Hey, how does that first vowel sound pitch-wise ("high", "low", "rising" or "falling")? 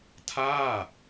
falling